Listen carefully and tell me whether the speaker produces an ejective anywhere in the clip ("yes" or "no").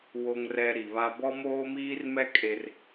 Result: yes